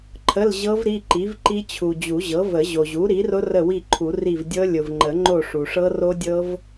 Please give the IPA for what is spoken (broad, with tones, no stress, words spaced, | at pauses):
ǃʰə˧˥˧lʑɤ˦˥v ɾi˧˥˧ ǃi˩˥vǃi˦˥t͡ɕʰu˩ d͡ʑu˨˩˦ʑɤ˩˥və˨˩˦ ʑo˩ʑu˩˥ ɾi˩˥rʊ˦˥rə˦˨wi˦˨ ǃʰu˨˩˦ri˦˨v dʲɤ˦˥ lʲʊ˩v ŋ͡ǃə˨˩˦ŋ͡ǃo˦˨ʂu˩ ʂɤ˦˥ro˦˥dʲɤ˦˥v